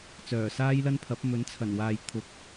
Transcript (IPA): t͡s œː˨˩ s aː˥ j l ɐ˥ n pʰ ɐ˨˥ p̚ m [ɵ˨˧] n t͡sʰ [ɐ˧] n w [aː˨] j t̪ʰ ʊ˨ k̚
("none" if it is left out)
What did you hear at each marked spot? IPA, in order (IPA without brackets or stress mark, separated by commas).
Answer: ɵ˨˥, ɐ˨˩, aː˨